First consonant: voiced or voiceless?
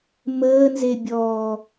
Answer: voiced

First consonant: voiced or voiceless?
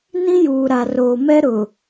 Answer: voiced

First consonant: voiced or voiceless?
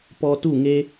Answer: voiceless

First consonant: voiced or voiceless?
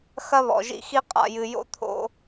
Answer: voiceless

